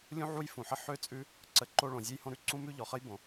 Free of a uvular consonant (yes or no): no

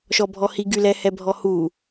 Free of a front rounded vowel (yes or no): no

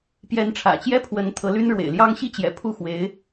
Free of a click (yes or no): yes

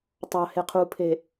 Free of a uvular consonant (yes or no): no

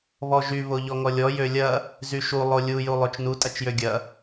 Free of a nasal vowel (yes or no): yes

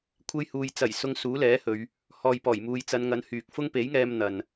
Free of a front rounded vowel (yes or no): no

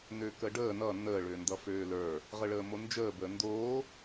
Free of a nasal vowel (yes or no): yes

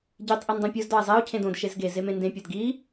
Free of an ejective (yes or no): yes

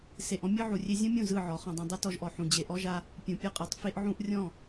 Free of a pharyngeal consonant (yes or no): no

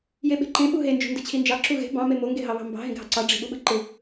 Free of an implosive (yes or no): no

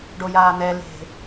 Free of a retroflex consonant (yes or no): no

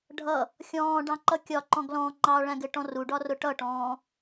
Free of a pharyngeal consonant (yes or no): yes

